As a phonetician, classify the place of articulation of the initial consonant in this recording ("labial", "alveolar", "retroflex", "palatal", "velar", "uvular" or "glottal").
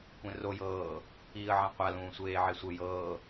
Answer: velar